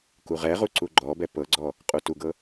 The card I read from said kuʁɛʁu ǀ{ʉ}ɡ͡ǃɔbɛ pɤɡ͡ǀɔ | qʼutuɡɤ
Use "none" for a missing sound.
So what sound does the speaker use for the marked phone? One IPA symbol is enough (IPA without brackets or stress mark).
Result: u